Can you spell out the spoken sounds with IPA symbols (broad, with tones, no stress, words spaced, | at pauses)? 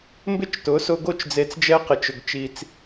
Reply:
mbɪ˥t͡ʃtʊ˩˥sʊ˧ɡo˥˩t͡ʃ d͡ze˧t͡sd͡ʒɛ˥qɪ˩˥t͡ʃ ʊ˩ɡt͡ʃi˩t͡s